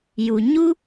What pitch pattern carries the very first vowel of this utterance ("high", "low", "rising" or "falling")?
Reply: low